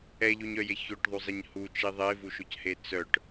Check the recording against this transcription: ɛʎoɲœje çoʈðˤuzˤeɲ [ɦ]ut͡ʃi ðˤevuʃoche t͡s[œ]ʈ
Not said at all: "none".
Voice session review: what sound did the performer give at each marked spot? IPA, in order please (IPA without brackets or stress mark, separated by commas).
h, œ